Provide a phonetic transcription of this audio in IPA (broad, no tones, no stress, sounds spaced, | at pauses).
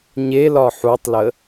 ɲ e l ɒ ħ u tˤ l ə